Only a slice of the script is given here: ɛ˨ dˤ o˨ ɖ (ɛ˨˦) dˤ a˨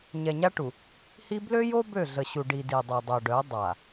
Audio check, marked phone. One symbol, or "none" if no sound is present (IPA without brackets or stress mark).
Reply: œ˨˦